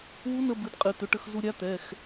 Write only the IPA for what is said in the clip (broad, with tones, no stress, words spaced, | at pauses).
wu˧˥nə˧ bɨ˩˥dqʼɨ˩˧˩t̪ʏ˩˥ʈə˧x zu˧ɾʲa˧˥t̪ɛ˩˧˩x